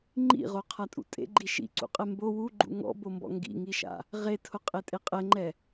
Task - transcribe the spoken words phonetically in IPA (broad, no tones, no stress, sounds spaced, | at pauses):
ŋ͡ǃ ḭ ʁ o qʰ a tʼ ṵ tʼ ḛ ɡ͡ǃ i ʃ ḭ ǀ ṵ qʼ ɛ m b o w u ɡ͡ǃ ṵ ŋ ɔ̰ b o m b ɔ̰ ŋ ɡ ḭ ŋ i ʃ a̰ | ʁ e tʰ ʊ qʼ e tʼ e qʼ ɛ ŋ͡ǃ ɛ